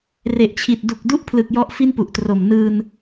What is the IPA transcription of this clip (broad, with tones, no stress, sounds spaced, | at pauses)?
r e˨˩ ʔ t͡ɕʰ i˨˩ t̚ d u˨˩ k̚ d u˥˩ ʔ pʰ l ɯ˨˩ k̚ j ɔ˦˥ ʔ f i˥˩ n p u˨˩ ʔ t r o˨˩ m n ɯː˧ n